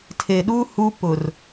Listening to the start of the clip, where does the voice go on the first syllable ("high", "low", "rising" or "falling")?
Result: low